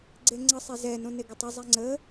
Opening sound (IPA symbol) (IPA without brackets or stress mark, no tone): ɡ͡ǀ